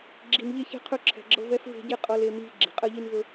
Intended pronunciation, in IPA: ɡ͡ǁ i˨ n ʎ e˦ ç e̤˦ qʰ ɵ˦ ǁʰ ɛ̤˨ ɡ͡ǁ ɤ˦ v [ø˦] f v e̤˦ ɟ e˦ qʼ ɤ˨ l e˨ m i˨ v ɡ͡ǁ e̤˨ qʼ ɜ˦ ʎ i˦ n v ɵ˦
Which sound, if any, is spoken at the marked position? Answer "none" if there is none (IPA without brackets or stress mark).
ɛ˦